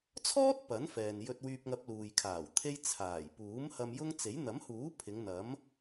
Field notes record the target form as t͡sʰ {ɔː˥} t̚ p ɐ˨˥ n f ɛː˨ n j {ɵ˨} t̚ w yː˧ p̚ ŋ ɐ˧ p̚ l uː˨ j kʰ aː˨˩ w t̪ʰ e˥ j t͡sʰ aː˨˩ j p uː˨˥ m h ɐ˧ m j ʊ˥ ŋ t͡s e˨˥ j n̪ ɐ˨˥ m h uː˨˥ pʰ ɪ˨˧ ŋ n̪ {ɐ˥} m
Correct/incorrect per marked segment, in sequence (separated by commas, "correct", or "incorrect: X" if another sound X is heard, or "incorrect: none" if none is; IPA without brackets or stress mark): correct, incorrect: ɵ˧, incorrect: ɐ˨˥